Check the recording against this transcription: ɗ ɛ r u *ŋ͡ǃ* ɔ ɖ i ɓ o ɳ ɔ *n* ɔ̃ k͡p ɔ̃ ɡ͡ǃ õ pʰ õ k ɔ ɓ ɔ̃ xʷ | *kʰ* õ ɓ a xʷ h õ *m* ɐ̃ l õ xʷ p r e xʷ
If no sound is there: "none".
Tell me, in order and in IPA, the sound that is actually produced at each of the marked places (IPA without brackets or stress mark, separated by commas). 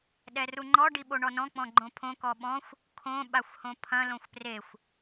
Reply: ŋ͡ǃ, n, kʰ, pʰ